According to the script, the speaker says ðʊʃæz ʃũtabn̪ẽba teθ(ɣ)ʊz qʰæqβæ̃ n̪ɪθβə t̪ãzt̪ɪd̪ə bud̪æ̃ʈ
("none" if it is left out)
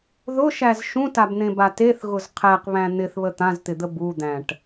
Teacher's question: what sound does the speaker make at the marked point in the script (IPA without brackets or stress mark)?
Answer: ɣ